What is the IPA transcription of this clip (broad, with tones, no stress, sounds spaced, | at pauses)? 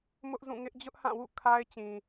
m ʊ˦ ʔ z ũ˦˨ ŋ ɪ˦ ʔ d͡ʑ ʊ˦ ʔ h ã˦˨ w ṵ˦˨ kʰ a˦ ɪ̯ t͡ɕ ĩ˨